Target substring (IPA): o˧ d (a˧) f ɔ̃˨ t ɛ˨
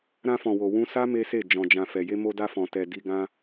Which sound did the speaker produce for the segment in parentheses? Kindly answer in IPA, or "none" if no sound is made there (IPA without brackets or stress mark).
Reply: a˧